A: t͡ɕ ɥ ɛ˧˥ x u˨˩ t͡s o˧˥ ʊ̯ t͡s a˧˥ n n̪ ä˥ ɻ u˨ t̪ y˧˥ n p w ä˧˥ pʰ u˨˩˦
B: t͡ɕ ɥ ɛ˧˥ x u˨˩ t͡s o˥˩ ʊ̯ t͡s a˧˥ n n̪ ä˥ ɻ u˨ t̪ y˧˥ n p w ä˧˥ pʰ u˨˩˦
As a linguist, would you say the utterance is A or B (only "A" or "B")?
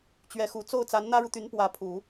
B